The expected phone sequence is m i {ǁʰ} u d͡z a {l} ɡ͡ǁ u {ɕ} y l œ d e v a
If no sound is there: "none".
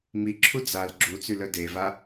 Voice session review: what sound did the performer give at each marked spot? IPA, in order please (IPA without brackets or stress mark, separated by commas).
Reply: ǁʰ, l, t͡s